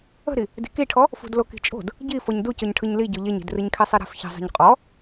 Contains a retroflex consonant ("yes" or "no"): yes